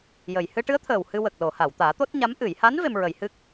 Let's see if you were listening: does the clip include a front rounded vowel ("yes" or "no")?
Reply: no